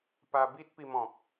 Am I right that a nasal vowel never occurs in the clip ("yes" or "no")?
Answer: no